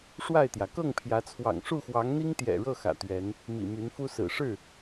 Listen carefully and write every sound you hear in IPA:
ʂ w a˥˨ ɪ̯ t̪ j ä˩ k ɤ˥˨ ŋ pʰ j ä˨˦ t͡sʰ w ɑ̰˨˩ ŋ ʂ u˥˨ x w ɑ˨˦ ŋ n̪ i˦ ŋ t̪ j ɛ̰˨˩ ɻ ɤ˥˨ x ä̰˨˩ t̪ ɥ ɛ˨˦ n | m ḭ˨˩ m y˨˦ n f u˦ s ɹ̩˨˩ ʂ ɻ̩˥˨

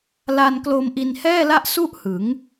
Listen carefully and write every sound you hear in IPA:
l a˧ n k l o˧ m ʔ i˧ n h ɛː˥˩ l a˥˩ ʔ s u˥˩ ʔ h ɯ˩˦ ŋ

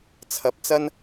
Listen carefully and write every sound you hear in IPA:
t͡sʰ ɐ˨ p̚ t͡s ɐ˥ n

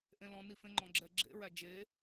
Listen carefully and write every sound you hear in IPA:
ʔ ẽ l ɔ̃ n i f ẽ ŋ͡ǃ ɔ̃ ɡ͡ǁ ɛ ɡ͡ǁ ḛ ɹ æ d͡ʒ e

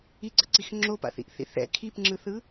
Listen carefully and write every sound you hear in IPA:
i ɡ͡ǀ ʌ ǀ i x ŋ͡ǁ o p a̰ θ ḭ ʔ θ ḭ θ ɛ̰ kʰ i p ŋ͡ǁ ɯ θ ɯ

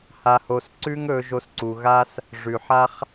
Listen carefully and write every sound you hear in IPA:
h a˧ h o˧ s ǀ ʉ˦ ŋ ɵ˧ ʒ o˧ s ǀ u˨ ɣ a˦ s | ʐ ʉ˨ ħ a˦ χ

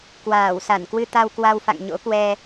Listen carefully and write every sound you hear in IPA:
k w aː˧˩ w s a˧˩ n k w ɨ˧ t̪ a˧ w k w a˧ w f a̰˧˨ ŋ ɲ o̰˧˥ k w ɛ˧

